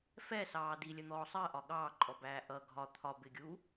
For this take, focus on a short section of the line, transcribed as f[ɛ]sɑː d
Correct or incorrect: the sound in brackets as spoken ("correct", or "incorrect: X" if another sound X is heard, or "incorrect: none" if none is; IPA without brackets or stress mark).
correct